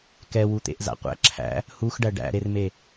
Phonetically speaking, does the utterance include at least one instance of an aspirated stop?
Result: yes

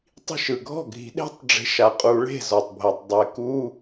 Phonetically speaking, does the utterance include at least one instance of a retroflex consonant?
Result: yes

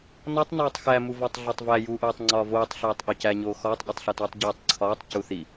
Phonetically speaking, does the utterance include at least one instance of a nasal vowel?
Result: no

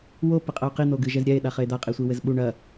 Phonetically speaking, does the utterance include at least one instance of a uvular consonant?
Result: yes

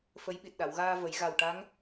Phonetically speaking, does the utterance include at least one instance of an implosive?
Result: yes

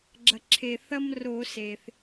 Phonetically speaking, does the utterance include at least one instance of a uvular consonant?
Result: no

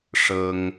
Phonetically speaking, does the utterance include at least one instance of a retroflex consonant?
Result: yes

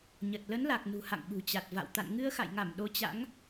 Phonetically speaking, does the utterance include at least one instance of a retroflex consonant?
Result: no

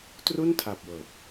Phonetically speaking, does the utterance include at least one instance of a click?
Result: no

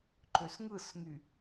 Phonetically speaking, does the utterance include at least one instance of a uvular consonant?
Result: no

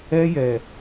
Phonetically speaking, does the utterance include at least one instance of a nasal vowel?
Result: no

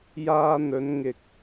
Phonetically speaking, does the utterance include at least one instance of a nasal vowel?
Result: no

